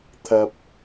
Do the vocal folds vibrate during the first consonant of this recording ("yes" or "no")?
no